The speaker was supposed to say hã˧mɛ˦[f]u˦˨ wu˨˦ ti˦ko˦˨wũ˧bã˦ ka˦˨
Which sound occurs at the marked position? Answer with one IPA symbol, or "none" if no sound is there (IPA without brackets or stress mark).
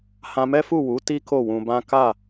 f